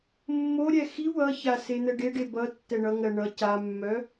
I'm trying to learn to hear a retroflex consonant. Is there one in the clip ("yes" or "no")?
yes